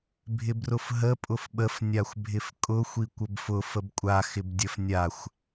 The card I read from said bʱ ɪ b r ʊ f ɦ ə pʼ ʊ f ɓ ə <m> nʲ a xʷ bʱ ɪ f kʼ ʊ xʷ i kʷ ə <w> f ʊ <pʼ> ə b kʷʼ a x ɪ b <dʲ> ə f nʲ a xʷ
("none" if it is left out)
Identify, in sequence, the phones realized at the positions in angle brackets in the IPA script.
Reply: f, b, f, dʲ

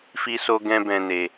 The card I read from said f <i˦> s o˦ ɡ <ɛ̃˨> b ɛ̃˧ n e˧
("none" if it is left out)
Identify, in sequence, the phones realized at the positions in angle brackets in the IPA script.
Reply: i˦, ɛ̃˦

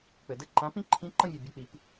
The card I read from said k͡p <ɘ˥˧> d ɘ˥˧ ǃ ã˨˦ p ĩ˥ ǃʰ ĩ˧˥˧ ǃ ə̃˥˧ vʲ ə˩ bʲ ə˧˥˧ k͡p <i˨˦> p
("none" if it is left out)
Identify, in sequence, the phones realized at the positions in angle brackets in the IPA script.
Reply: ɘ˩, i˨˦

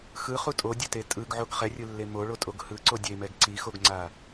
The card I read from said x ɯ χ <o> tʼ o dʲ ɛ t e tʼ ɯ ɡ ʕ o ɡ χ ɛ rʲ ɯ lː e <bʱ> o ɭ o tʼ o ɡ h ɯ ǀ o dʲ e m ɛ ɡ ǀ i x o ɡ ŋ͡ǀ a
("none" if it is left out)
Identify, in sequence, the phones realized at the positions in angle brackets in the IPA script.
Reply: u, m

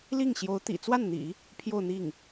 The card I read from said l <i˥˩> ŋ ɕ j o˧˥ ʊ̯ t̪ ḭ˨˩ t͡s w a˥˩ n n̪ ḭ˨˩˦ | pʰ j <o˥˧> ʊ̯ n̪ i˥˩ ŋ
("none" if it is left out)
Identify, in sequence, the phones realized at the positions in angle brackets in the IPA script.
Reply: i˥˩, o˥˧

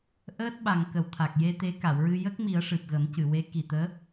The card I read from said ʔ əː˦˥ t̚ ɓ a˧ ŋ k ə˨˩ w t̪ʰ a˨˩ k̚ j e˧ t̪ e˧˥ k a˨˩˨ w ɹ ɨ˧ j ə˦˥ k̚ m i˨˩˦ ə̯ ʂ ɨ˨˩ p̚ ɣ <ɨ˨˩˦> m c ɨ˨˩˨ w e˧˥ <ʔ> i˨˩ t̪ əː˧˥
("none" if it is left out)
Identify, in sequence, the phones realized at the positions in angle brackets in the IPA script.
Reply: ə˨˩˦, k

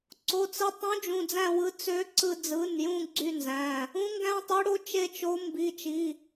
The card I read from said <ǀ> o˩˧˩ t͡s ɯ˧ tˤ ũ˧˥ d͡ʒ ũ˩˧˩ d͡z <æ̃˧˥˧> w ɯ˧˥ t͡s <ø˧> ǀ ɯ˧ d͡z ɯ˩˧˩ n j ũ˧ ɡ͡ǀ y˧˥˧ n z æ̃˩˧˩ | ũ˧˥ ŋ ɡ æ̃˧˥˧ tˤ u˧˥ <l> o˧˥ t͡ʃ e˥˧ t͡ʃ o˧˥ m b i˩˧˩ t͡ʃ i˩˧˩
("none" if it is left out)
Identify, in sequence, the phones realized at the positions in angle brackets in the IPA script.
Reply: ǀ, æ̃˥˧, ø˧˥, ɽ

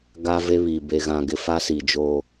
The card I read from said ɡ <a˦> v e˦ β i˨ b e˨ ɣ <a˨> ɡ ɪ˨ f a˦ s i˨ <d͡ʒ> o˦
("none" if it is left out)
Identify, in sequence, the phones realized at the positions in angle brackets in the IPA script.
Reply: a˦, ã˨, d͡ʒ

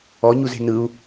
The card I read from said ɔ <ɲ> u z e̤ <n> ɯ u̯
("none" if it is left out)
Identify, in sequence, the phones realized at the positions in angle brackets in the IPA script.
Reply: ɲ, n

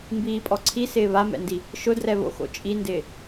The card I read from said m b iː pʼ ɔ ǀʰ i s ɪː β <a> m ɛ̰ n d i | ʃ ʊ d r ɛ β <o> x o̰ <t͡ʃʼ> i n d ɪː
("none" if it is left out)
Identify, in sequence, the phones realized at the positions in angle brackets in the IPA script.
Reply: a, o̰, t͡ʃʼ

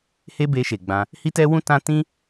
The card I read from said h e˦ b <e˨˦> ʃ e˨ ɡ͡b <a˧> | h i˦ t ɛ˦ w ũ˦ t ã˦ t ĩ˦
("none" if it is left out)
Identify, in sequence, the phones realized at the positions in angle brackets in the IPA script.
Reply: e˧, ã˧

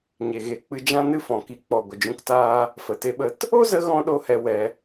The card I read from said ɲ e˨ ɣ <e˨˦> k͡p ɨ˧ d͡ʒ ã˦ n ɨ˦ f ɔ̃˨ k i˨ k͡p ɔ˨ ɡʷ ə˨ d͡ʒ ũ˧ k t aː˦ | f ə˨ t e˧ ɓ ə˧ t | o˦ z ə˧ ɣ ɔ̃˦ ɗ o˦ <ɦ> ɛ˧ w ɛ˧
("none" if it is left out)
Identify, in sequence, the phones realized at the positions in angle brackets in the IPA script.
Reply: e˨˦, h

